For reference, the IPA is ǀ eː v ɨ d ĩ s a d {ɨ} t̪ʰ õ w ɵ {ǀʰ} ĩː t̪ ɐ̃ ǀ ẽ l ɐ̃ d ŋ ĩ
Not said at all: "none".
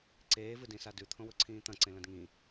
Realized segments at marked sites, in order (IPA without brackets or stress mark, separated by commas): ʉ, ǀʰ